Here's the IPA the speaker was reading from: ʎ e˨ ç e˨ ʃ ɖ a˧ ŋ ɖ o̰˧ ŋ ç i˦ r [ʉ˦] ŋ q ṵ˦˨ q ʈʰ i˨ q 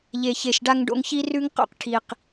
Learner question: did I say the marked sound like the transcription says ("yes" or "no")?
yes